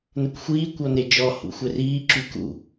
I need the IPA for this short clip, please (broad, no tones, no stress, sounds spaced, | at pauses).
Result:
n ə kʷ xʷ iː kʷ ɔ n e d͡ʒ ɔ h ṵ xʷ ɛ r iː ǁ y k ṵ